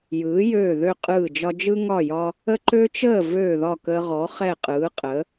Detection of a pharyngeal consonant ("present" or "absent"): absent